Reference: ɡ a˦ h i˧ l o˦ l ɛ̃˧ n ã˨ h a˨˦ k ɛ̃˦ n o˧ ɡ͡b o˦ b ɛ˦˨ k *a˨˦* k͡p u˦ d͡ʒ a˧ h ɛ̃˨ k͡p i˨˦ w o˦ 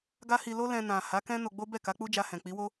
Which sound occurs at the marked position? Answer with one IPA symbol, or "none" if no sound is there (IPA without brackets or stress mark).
a˨˦